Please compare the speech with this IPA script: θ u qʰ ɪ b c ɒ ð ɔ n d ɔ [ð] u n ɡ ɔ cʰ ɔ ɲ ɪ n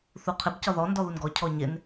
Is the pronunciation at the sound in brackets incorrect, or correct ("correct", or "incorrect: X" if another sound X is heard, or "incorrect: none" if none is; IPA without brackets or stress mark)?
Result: correct